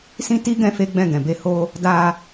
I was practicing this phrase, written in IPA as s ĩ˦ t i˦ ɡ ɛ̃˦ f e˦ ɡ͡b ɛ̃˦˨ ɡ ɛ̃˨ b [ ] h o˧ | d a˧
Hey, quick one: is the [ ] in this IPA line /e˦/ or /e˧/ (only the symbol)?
e˧